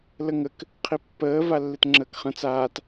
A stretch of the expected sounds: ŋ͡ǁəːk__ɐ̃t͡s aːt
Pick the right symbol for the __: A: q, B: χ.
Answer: B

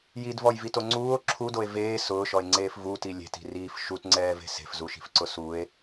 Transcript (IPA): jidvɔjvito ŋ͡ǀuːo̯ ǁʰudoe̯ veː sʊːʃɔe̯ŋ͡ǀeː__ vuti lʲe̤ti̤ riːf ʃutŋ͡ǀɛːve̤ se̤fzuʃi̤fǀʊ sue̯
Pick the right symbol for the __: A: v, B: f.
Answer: B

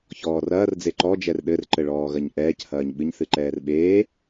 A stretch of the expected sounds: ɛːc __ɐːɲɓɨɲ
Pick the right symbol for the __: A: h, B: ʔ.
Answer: A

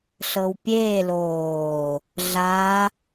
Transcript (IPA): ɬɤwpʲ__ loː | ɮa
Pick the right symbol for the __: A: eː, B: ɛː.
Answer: A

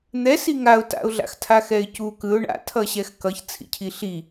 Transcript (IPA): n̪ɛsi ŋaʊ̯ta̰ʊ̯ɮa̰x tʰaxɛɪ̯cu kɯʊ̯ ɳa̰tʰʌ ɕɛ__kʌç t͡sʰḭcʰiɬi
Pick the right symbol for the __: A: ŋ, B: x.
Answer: B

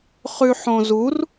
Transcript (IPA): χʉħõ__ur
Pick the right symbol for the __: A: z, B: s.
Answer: A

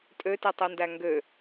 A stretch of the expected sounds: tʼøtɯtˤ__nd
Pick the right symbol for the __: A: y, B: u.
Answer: B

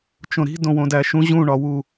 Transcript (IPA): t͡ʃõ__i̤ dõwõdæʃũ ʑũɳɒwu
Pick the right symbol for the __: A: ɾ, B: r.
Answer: A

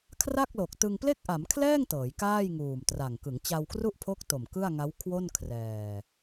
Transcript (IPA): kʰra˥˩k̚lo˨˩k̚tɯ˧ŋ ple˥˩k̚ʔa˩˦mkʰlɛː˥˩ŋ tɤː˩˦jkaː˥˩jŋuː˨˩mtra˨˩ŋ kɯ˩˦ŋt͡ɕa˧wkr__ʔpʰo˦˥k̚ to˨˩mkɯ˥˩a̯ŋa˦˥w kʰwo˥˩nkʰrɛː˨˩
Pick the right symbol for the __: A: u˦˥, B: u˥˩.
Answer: B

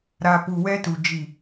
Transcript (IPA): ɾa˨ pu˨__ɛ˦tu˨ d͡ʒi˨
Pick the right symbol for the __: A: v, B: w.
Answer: B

